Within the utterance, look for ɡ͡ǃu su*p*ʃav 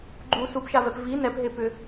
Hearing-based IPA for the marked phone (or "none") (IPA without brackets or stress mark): p